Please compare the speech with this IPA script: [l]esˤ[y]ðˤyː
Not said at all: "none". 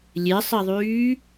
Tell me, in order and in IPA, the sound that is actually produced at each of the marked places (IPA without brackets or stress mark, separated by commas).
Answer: lʲ, i